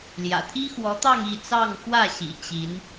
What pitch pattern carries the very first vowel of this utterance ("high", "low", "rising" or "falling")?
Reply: low